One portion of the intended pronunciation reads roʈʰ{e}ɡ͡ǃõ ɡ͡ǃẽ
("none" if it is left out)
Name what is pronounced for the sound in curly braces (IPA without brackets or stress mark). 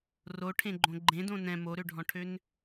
ẽ